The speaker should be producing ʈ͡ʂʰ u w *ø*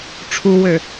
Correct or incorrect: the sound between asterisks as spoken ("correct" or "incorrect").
correct